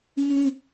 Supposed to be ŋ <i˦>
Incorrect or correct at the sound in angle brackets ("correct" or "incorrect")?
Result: incorrect